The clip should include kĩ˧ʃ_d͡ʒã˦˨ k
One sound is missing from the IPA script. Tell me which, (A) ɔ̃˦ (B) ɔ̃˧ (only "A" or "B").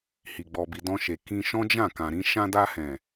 A